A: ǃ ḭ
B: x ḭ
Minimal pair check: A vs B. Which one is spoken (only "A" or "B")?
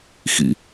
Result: B